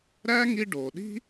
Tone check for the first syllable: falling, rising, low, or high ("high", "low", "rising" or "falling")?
high